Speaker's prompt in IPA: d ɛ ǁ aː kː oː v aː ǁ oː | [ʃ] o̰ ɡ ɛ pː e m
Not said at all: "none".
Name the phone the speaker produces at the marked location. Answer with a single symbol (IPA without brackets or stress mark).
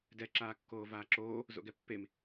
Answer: z